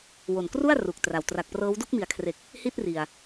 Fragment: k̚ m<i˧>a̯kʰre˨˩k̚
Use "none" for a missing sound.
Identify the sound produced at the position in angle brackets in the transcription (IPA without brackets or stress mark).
i˩˦